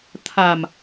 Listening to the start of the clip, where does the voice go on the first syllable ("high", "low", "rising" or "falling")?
low